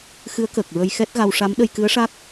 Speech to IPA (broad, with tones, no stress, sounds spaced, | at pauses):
x ɨ˧˥ ə̯ k əː˨˩ k̚ ɹ ə˧ j x ɛ˦˥ t̚ ɣ a˧ w ʂ a˧˥ m ɗ ə˧ j k ɨ˧˥ ə̯ ʂ a˦˥ k̚